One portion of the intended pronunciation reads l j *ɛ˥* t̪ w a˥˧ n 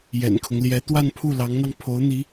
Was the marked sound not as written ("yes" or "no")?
yes